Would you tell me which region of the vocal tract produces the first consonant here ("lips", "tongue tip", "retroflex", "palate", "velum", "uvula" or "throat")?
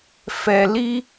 lips